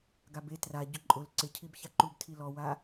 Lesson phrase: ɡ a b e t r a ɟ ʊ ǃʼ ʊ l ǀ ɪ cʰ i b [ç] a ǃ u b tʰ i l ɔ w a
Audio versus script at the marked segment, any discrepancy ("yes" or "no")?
no